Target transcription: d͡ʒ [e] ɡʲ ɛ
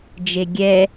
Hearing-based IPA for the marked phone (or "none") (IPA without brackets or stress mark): e